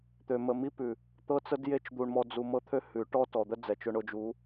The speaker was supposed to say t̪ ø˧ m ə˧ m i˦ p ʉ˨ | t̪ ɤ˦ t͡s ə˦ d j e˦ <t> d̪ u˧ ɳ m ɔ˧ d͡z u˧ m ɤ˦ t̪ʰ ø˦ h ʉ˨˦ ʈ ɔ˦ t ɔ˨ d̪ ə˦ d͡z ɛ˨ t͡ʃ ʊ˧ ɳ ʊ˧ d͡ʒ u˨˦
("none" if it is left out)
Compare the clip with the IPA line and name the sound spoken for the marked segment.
t͡ʃ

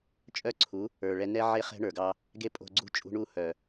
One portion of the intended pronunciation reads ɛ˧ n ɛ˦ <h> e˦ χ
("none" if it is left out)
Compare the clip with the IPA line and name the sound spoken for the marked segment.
ʕ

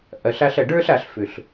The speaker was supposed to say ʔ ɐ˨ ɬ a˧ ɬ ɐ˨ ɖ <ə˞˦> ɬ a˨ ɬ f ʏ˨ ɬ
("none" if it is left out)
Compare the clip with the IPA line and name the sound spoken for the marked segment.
ə˞˦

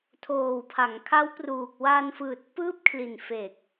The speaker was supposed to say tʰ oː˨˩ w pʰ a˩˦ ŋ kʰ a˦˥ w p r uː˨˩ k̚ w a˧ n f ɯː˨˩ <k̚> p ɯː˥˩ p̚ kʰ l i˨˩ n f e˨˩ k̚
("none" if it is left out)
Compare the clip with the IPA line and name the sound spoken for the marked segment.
t̚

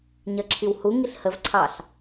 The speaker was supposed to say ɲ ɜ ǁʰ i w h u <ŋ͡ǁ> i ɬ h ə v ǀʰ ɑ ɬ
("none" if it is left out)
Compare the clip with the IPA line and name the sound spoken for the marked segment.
ŋ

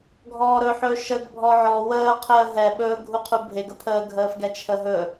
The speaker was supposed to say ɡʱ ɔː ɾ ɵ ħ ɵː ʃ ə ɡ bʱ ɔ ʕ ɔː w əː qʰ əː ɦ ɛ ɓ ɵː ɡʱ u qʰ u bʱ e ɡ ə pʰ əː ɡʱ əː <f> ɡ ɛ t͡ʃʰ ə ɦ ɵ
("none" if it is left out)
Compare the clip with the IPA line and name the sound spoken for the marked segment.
f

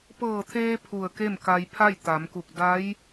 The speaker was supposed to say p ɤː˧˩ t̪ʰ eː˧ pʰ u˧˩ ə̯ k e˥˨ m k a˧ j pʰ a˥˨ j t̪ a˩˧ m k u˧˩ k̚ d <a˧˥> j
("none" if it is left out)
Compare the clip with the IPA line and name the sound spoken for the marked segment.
a˧˥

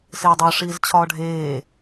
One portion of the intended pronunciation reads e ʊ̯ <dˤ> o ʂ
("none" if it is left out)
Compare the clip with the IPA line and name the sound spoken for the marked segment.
dˤ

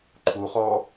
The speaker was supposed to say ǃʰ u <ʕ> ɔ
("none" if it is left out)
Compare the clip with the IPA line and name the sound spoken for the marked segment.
χ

